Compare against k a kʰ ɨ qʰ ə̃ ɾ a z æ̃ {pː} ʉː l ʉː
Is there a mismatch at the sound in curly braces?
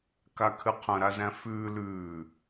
yes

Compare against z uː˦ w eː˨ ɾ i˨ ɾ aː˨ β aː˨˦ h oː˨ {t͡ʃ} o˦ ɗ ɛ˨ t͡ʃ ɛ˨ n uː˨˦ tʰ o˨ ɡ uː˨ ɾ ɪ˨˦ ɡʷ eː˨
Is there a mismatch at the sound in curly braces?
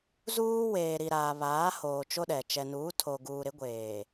no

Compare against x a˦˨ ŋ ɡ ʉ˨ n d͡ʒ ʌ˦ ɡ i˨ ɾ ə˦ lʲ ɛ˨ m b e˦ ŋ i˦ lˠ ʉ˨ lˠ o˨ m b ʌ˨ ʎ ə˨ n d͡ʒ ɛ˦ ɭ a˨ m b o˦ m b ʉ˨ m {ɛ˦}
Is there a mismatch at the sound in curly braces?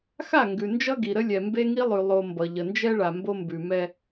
no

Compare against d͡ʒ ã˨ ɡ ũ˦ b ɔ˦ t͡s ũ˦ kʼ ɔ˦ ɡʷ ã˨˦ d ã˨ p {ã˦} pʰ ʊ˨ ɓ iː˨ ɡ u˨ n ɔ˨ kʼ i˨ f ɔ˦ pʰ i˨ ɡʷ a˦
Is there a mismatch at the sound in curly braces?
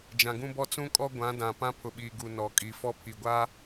no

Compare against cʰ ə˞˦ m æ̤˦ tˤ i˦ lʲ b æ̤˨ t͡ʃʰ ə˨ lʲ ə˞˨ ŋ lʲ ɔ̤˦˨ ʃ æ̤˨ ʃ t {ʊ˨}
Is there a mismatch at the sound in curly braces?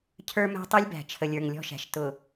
no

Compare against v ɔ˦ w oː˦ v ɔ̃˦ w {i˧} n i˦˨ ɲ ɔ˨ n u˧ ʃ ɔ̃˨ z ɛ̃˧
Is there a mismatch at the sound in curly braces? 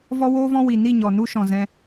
yes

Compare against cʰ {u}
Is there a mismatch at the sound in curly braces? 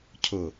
yes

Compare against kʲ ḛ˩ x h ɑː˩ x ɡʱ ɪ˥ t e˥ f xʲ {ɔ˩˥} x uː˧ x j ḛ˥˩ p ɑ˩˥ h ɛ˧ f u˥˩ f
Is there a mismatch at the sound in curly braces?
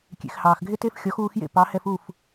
no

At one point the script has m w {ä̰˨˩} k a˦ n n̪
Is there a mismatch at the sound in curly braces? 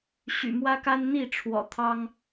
yes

